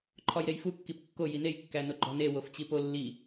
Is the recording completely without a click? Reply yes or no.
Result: no